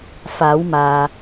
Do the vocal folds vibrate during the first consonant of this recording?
no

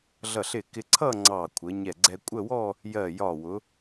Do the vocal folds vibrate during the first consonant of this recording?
yes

